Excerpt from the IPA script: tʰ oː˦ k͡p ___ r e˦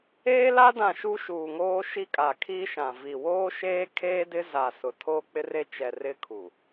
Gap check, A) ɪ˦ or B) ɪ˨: A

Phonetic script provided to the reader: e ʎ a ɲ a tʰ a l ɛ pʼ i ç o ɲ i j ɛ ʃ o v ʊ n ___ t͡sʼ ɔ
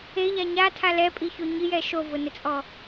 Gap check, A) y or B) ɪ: B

